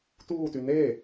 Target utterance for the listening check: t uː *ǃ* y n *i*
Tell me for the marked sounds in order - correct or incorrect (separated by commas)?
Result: incorrect, incorrect